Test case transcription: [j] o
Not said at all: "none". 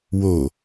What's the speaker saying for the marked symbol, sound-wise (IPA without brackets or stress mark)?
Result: w